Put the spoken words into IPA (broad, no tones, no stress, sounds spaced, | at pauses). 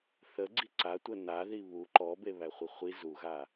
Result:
θ ə ɡ͡ǀ i ǀ a tʷ ə n a ð i β u ǃ ɔ b e β æ χʷ i χʷ i z u ɣ a